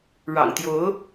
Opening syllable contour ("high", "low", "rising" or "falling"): low